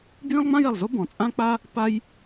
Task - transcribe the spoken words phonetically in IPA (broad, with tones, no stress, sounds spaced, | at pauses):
b j ĩ˥ lˠ ŋ͡m ã˥ j ɛ˨˩ lˠ z o˥ b ɔ̃˨˩ t͡sʼ ã˥ k͡p a˥ | p a˥ j